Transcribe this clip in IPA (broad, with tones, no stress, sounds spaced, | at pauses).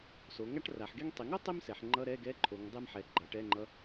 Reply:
s o˩˧ ŋ a˥ ʈ r a˩˧ ħ ɡ e˥ ŋ tˤ i˩˧ ŋ o˥ tˤ i˥ m s ɛ˩˧ ħ ŋ͡ǃ ʌ˧˥˧ ɾ ɛ˧˥˧ ɡ ɛ˧˥˧ ǃʰ o˩˧ ŋ dˤ e˥ m ħ ɛ˩˧ ɡ͡ǃ ʌ˩˧ ʈ ɛ˧˥˧ ŋ͡ǃ ʌ˧˥˧